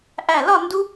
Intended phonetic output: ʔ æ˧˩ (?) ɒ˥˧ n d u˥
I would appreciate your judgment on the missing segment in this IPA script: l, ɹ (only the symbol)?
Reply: l